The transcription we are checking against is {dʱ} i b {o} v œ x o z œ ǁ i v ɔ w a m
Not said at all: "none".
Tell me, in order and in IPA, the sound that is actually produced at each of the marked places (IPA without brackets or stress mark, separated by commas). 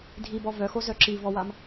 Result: dʱ, ɔ